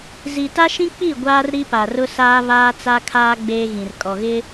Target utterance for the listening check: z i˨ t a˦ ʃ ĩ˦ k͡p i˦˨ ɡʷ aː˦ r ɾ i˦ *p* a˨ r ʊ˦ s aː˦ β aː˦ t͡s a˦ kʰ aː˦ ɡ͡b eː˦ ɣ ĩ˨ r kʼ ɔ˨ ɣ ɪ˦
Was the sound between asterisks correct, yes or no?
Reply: yes